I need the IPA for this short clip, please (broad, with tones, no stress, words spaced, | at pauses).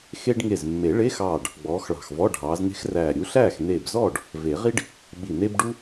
xe˥ɖ ŋe˧˩zmːe˨˩˦ɭe˧˥˧xɑː˧˩ɖ | ɡ͡bɔː˨˦xɭɑ̤˧˩xvɔ˧˥˧ ɖʱɑː˨˦zne̤˥xræː˧˩ ɾʲu˨˦ɬæː˥˩x neː˧˩bzɔː˥˩ɖ | ve˨˩˦ʁi˥ɖ | ɓi˧˩ne˥bɖu˥